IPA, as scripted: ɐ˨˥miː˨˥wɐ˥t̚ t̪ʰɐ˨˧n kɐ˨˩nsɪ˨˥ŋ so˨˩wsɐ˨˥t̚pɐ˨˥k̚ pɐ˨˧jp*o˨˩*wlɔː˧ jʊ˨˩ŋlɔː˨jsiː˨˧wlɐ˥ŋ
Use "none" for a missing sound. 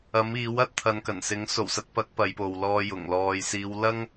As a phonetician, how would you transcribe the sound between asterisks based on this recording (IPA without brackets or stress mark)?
o˨